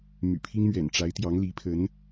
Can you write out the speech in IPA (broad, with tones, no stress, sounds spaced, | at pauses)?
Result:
m y̰˨˩ pʰ i˥ ŋ m ɥ ɛ̰˨˩ n ʈ͡ʂ a˧˥ ɪ̯ t̪ j ɑ˧˥ ŋ l i˧˥ pʰ ə˧˥ n